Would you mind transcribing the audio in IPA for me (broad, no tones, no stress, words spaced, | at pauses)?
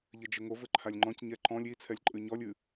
ʎɘd͡ʒɘŋo vɘǃʰalʲŋ͡ǃɔ̃c ɲɛǃɔ̃lʲ i t͡sʰɛlʲǃʼɨɲɔlʲ ɨ